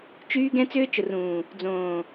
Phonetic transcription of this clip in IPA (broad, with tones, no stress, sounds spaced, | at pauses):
t͡ʃ yː˦ ɡ ɛ̃˦ t͡s ʏː˦ t͡ʃ ʊ˨ r ũː˨ | d͡z õː˨